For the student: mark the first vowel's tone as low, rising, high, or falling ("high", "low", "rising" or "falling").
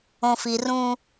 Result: low